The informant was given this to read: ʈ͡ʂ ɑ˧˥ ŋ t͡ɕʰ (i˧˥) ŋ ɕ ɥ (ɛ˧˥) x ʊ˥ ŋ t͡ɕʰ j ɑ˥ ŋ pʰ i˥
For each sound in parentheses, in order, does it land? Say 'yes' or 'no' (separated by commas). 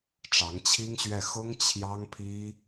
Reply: no, no